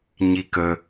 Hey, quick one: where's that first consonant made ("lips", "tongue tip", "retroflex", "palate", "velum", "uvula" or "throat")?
palate